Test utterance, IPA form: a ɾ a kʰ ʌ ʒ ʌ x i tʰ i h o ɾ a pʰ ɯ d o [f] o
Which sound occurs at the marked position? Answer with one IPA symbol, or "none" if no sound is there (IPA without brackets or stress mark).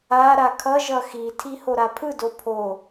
pʰ